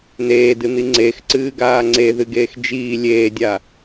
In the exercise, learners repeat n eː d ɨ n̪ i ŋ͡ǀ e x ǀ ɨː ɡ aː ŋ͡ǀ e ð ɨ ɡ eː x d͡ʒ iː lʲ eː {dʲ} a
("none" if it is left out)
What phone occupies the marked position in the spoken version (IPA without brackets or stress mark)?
dʲ